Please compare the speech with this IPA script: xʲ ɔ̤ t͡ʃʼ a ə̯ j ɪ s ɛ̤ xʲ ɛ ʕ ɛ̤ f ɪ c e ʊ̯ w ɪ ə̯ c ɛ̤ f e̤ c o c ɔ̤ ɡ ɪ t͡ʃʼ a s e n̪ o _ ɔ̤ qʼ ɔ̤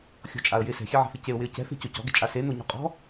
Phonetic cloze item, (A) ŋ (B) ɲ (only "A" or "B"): B